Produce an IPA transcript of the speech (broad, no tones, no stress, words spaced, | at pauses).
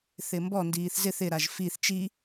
θɪmbɔndiːθ zɪθ ɪɾaʒ fiθ t͡ʃi